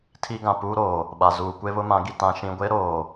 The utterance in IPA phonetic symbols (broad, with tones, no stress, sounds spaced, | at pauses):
tʰ i˦ ɡ ã˨ p uː˦ ɾ oː˨ | ɓ a˨ z uː˨ kʷ e˦ β ʊ˦ m ã˨˦ ɡ i˨ t ã˨ ʃ ĩ˨ ɡʷ e˦ ɾ oː˨